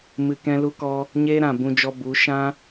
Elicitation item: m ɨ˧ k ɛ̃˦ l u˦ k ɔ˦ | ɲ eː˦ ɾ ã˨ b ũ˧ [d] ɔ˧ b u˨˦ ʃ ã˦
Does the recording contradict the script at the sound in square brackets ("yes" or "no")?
yes